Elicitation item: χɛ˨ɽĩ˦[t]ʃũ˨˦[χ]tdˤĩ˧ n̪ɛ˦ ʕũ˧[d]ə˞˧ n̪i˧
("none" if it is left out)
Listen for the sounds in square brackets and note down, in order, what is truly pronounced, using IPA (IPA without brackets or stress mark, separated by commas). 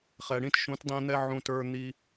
t, none, t